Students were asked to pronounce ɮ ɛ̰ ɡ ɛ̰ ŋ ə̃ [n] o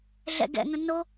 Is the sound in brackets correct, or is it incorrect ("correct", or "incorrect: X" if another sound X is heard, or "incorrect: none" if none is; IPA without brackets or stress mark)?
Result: correct